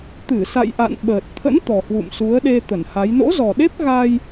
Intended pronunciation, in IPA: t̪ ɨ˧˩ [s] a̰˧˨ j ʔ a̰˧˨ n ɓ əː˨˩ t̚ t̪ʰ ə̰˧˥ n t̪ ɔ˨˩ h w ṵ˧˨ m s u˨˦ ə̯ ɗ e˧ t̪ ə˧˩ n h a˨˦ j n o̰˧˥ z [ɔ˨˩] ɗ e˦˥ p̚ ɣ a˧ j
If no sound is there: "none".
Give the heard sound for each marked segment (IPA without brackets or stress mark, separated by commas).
s, ɔ˨˩